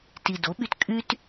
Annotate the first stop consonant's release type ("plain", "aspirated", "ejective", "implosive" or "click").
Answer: plain